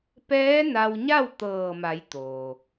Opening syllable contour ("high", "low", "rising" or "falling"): rising